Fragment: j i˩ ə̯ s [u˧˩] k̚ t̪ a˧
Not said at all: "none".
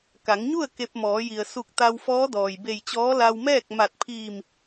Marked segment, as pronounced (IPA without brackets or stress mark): u˧˩